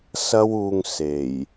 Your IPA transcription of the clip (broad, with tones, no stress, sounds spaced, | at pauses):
s ɐ˥ w uː˧ ŋ s e˨˩ j